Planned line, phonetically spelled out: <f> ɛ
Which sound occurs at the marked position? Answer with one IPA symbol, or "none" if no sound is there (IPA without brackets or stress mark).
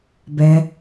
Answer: b